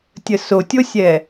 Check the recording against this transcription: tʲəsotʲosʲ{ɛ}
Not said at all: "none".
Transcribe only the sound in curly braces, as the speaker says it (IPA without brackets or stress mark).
ɛ